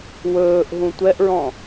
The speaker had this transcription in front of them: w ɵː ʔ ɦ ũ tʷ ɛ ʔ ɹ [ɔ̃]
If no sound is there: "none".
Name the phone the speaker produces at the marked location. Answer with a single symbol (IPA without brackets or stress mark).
ɔ̃